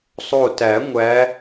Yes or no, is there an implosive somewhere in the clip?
no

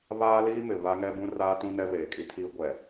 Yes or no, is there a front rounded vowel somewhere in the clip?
no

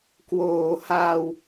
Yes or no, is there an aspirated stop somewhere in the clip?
no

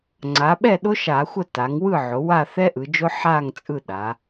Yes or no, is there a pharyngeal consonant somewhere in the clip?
yes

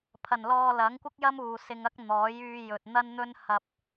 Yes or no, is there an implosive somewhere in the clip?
no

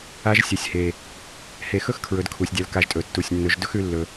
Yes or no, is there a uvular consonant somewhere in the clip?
no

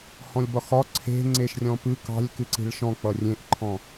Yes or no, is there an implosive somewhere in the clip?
no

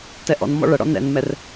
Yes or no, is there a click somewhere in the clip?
no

